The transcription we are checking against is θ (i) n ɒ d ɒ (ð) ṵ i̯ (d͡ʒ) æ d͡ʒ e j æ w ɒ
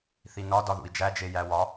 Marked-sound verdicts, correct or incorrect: correct, correct, correct

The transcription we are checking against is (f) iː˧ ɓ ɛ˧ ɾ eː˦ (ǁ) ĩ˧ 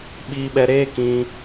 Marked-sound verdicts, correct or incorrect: incorrect, incorrect

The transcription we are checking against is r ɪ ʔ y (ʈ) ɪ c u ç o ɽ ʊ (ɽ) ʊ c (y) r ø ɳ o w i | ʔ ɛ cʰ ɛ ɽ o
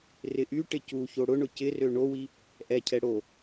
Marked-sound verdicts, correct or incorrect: correct, incorrect, incorrect

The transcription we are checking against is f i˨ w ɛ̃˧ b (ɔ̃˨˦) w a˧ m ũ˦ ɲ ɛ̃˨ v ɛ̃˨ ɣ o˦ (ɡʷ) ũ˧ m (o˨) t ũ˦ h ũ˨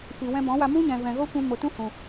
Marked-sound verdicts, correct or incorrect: correct, incorrect, correct

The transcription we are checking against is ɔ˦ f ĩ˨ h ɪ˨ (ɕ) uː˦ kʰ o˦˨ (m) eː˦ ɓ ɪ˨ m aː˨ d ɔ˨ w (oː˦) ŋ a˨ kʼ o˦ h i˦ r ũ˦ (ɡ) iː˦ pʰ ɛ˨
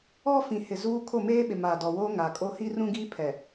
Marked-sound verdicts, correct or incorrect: incorrect, correct, incorrect, correct

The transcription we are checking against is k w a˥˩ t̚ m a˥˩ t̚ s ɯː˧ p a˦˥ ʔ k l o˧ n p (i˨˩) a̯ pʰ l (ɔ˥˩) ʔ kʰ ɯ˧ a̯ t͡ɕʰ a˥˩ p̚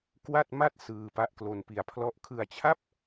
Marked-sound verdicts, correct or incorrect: incorrect, correct

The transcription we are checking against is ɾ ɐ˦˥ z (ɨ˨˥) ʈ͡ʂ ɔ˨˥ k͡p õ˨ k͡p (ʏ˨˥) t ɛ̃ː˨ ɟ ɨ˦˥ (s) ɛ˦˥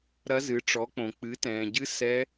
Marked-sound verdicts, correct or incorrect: correct, incorrect, correct

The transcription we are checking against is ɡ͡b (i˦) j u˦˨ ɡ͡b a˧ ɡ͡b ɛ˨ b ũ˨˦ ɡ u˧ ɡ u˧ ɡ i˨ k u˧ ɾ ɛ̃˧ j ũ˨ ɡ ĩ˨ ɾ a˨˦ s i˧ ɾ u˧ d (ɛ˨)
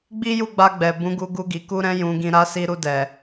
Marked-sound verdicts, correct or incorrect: correct, correct

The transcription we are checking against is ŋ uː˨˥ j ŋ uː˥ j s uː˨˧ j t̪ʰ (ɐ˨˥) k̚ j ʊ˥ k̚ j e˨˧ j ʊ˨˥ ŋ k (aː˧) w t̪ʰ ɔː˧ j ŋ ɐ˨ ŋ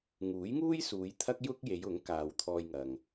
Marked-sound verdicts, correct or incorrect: incorrect, incorrect

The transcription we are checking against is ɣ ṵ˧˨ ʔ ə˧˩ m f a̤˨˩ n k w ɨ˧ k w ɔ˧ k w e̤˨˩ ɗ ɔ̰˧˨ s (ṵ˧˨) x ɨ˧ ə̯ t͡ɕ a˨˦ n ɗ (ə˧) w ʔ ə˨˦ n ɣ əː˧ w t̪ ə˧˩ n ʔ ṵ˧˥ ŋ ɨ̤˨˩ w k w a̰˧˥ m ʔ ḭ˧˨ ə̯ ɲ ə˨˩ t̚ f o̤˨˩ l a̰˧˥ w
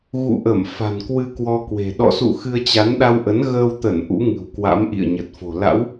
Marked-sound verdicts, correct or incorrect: correct, incorrect

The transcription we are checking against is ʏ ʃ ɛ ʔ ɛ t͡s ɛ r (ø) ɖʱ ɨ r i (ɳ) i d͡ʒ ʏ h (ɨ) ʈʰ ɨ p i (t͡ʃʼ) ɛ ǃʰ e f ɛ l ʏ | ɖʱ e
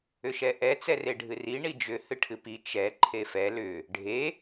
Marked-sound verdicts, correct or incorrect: incorrect, correct, correct, incorrect

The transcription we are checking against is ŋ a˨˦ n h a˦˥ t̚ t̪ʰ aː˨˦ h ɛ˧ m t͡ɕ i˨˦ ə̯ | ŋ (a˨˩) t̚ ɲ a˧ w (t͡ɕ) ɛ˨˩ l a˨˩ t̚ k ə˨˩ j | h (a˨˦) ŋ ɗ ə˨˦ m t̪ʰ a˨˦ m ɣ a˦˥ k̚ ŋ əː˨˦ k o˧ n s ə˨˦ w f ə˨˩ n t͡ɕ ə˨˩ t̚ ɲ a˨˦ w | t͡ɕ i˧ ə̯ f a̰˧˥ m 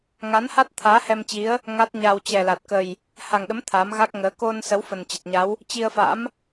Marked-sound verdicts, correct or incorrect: incorrect, correct, incorrect

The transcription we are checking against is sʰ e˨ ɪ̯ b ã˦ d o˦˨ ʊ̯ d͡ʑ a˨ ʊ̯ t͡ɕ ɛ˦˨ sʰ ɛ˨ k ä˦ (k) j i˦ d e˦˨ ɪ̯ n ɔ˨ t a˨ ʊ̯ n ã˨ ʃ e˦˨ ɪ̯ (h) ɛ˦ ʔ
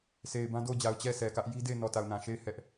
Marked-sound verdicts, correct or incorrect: incorrect, correct

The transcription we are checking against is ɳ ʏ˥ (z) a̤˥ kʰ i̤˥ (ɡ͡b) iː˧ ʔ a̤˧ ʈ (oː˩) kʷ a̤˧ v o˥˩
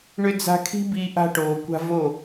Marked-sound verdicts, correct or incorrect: incorrect, incorrect, correct

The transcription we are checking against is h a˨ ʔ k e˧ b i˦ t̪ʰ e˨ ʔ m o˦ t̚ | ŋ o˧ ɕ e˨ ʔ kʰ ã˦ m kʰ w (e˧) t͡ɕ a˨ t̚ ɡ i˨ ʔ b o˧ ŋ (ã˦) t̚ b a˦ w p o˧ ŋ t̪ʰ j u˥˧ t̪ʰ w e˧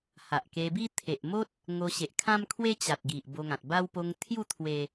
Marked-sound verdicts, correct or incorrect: incorrect, incorrect

